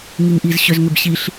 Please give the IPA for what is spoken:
ŋ i ŋ ʔ i z ɕ ʏ z ŋ ʏ b ɕ i ɬ

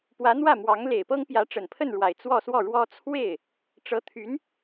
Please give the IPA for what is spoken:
p w ä˧˥ n̪ w ä˥˩ m w ɑ˧˥ ŋ l e˨˩ ɪ̯ p ɤ˥ ŋ p j ä˧˥ ʈ͡ʂ ə˨˩ n pʰ ə˥˩ n ɻ w a˨˩ ɪ̯ t͡s w ɔ˥˧ s w ɔ˥˩ ɻ w ɔ˥ t͡sʰ w e˥˩ ɪ̯ | ʈ͡ʂ ɤ˧˥ t̪ʰ y˧˥ n

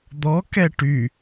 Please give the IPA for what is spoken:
d̪ ɔ k ɛ ʈ y

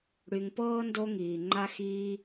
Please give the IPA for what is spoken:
ɽ y˨ ŋ p ɤː˥ n d o˦ ŋ iː˩ ŋ͡ǃ a˦ x iː˦

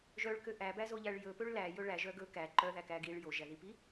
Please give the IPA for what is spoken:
ʒ œ ɭ k ø ʔ æ b æ z o ʎ æ ɭ j ɵ p ø ɭ l æ j ɵ ɭ æ ʒ œ ɡ ɵ k æ ǃ œ ð æ k æ ɡ i ɭ j o ʒ æ ð i p i

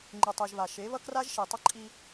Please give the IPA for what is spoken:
ŋ͡ǃ ɯ˨ tˤ i˨ ʒ β a˨ ʃ e˨˦ β ʌ˦ k r a˦ ʒ ʃ i˨ tˤ ʌ˦ ǃʼ i˦

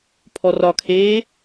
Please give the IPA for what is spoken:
pʰ ɔ r ɒ kʰ eː

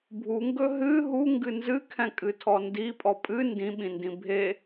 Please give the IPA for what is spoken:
bʱ u ŋ ɡ ɵ ɦ ɨ ɦ u ŋ ɡ ɨ n z ɨ kʰ ɛ̃ kʼ ɨ tʰ ɔ n d i pʼ ɔ pʼ ɨ n d ĩ ɓ ĩ n d ĩ bʱ e

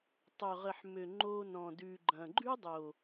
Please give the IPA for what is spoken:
tˤ ø˨ ʁ ə˨ ħ m ø˨ ŋ͡ǃ o˧ n ɔ̃˨ d ʉ˨ ɡ͡ǃ ɐ̃˨ ɡ͡ǃ ʉ˦ dˤ o˨

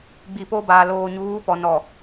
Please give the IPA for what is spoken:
ɡ͡b i˨ p o˦ b aː˨ l oː˨ ɲ uː˨˦ p ɔ˨ n ɔ˨

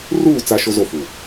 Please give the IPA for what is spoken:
r uː˦˨ t͡s a˦ ʃ o˦ z o˦˨ f u˨

